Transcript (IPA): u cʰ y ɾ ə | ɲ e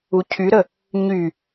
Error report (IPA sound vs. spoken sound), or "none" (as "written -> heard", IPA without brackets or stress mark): e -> y